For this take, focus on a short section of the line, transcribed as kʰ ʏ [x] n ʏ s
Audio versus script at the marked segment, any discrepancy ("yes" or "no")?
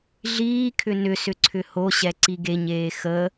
yes